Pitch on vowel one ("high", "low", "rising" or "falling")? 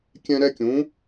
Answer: high